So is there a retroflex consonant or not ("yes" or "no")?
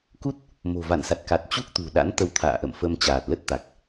no